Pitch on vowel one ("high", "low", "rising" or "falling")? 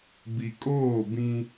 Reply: low